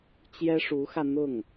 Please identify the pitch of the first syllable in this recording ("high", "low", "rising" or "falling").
high